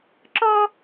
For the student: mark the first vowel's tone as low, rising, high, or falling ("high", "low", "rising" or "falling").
high